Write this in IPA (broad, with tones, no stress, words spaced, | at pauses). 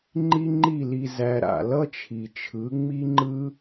ŋ͡ǃi˦ŋ͡ǃi˦˨li˧ zæ˧ɾa̰˨ lʌ˦t͡ʃʰi˨t͡ʃʰɯ˨˦ ŋ͡mi˦ŋ͡ǃɯ˦